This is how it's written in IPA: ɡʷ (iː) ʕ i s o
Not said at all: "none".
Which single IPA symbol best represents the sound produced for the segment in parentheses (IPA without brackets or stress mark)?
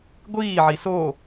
iː